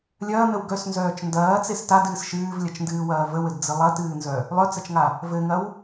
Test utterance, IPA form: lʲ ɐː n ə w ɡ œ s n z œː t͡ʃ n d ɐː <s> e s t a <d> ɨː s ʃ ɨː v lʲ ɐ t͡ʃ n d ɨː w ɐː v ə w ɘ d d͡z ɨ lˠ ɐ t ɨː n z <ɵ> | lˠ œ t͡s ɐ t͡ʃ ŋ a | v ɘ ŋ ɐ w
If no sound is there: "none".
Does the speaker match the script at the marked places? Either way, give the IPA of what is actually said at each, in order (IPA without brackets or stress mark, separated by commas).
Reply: t͡s, d, œ